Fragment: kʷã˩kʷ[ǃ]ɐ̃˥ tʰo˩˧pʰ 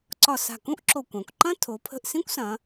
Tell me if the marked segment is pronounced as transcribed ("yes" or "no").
yes